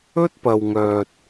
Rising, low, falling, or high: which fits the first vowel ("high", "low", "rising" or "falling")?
high